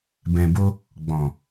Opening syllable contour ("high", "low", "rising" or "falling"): low